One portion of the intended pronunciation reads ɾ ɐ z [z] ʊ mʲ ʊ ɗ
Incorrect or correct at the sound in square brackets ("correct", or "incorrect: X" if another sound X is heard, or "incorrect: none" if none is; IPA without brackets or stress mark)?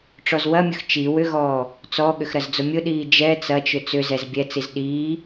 incorrect: d͡z